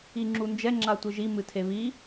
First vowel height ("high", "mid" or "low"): high